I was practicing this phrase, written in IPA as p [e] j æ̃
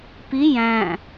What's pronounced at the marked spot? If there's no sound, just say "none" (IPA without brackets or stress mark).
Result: i